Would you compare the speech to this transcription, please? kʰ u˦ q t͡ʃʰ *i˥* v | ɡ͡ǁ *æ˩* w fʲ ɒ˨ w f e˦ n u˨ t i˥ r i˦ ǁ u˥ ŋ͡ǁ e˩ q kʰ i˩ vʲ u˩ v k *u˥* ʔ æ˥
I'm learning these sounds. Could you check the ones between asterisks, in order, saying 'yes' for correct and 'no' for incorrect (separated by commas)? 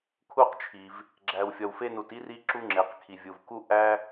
no, no, yes